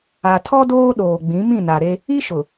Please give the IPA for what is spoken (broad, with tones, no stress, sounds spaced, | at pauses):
a˨ tʰ ɔ˦ d oː˦ ɗ oː˨ ɡ͡b ĩ˨˦ m ĩ˦˨ n a˨ ɾ e˦ | i˦ ʃ ʊ˨